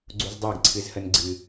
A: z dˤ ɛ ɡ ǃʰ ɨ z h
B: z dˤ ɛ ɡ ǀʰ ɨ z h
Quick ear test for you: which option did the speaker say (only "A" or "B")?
B